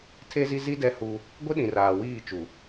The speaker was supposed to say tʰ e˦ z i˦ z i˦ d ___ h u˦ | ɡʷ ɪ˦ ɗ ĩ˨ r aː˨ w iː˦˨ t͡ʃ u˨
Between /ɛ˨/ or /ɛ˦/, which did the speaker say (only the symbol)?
ɛ˦